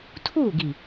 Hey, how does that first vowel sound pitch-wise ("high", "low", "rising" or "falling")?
falling